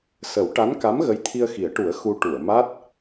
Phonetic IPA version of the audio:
s ə˨˩˦ w ʈ a˧˥ n k a˧˥ m ɣ ə˧˥ j t̪ʰ i˧ ə̯ x i˨˩˦ ə̯ ʈ u˨˩˦ ə̯ x u˧ ʈ u˨˩˨ ə̯ m a˦˥ t̚

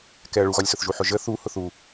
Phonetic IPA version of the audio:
k ɛ ɐ̯ ɭ u ɣ ɒ lʲ s ʊ θ ʒ u ħ ʊ ʒ ə θ u h ʊ θ u

